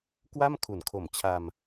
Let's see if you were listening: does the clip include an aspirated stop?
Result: yes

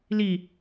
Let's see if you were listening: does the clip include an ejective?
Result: no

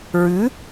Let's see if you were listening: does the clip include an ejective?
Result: no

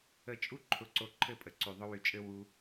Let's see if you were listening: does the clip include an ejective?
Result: yes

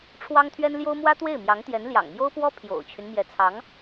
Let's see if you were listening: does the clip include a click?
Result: no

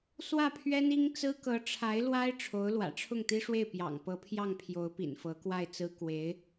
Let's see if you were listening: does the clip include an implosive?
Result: no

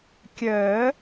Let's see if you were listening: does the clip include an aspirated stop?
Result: no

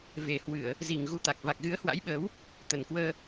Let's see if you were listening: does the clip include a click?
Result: no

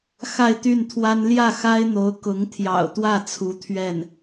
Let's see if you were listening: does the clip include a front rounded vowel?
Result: yes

